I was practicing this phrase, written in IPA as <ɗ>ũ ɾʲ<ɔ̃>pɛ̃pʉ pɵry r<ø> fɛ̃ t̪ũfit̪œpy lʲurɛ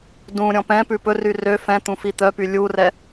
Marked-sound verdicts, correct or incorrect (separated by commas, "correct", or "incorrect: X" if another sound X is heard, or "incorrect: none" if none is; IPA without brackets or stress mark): incorrect: d, correct, correct